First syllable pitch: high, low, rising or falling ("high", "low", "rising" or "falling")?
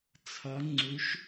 rising